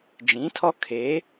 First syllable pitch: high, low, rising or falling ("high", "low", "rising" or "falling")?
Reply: rising